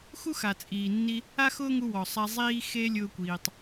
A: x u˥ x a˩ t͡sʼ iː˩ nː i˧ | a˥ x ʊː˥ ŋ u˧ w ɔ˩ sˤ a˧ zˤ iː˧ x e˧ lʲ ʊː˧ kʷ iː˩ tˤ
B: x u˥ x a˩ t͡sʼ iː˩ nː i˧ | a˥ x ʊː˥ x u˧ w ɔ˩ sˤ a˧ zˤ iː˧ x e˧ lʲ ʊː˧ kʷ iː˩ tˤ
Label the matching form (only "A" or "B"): A